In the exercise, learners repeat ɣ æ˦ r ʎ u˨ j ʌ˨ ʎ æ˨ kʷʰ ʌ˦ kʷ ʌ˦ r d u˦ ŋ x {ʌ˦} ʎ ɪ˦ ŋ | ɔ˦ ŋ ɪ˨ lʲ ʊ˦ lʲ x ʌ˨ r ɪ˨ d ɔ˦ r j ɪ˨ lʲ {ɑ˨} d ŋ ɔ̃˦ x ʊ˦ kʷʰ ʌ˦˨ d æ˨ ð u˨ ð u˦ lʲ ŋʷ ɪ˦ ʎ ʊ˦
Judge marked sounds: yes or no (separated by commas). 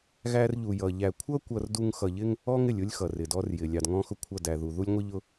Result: no, yes